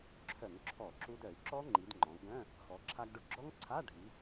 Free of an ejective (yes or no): yes